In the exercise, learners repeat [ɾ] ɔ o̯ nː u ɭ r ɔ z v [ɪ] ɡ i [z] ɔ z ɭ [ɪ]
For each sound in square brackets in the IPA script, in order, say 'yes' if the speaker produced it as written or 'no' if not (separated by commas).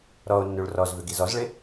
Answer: yes, no, yes, yes